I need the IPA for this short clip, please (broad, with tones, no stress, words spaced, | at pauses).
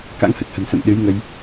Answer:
ka̰˧˥ŋhə˨˩t̚hə̤˨˩n sə̰˧˨mɗɨ˨˦jŋə˧j